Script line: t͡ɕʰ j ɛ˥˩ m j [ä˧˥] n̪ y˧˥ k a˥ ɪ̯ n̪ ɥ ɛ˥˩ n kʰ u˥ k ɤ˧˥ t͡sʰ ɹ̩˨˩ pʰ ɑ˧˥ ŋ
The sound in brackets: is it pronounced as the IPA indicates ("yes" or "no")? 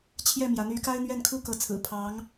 yes